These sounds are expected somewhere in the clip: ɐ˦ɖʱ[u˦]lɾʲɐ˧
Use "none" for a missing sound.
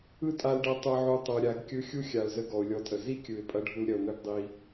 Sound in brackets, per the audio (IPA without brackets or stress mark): u˦